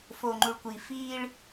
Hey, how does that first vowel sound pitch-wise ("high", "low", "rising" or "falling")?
low